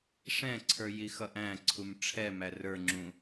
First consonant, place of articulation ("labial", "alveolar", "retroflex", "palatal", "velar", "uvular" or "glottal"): retroflex